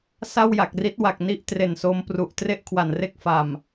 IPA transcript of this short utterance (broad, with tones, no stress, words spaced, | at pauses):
sa˥˩wja˨˩k̚ri˦˥t̚wa˨˩k̚ ni˥˩ʔtre˨˩nso˧mpru˨˩ʔ tre˥˩ʔkʰwa˨˩nre˥˩k̚fa˨˩m